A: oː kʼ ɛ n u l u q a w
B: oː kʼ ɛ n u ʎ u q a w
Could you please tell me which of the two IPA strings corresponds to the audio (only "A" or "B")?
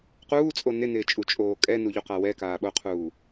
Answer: B